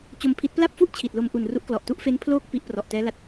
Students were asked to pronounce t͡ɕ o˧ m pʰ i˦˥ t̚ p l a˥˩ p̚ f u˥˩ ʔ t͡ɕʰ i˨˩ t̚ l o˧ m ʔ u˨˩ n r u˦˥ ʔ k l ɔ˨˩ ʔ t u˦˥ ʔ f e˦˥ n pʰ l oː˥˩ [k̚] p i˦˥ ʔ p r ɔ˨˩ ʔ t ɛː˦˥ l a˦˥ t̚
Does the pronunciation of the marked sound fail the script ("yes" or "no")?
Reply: no